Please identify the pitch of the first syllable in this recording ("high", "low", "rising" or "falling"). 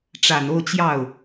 low